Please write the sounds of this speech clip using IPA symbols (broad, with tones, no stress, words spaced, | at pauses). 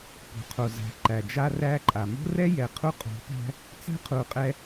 pṳ˨qʰo˨zæ̤˨ ǃæ˨d͡ʒa˦ræ˦ǃʼa˨ mo̤˦rɛ˦jɛ˨ qʰu˦qʼo̤˨˦pæ̤˦ | t͡sæ̤˦qʰu˨ qʼɛ˦